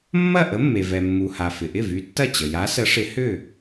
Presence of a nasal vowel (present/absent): absent